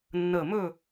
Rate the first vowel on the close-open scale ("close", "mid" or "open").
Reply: mid